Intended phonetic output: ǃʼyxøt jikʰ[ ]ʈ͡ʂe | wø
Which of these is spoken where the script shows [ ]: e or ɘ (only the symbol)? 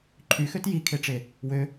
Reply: e